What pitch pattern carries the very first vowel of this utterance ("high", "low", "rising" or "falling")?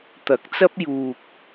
rising